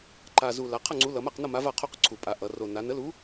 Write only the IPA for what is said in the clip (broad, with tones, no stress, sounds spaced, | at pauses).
ǃ a˨˩ z u˨˩ l a˩˧ qʰ ʌ˥˨ ŋ͡ǀ u˨˥ l ʌ˩˧ m a˥˨ q n ʌ˥˨ m a˨˥ v a˥˨ qʰ o˥˨ q ǀʰ u˨˩ pʼ a˩˧ ʔ ʌ˩˧ r o˨˩ n a˩˧ n ə˨˥ l u˨˥